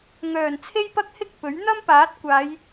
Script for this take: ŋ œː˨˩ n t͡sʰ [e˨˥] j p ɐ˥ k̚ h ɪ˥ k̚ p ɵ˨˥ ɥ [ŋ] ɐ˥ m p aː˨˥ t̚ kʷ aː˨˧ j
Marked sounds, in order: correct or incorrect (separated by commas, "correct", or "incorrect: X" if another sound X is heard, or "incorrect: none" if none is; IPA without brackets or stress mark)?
incorrect: e˥, incorrect: n̪